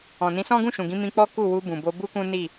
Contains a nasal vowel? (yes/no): yes